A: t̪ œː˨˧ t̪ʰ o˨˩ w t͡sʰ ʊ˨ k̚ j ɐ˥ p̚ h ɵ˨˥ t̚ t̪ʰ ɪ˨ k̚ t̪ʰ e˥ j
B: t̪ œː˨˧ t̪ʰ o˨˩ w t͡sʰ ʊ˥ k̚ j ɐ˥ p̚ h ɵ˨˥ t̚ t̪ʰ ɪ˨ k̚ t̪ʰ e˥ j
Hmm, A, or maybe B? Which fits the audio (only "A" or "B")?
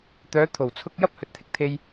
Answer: B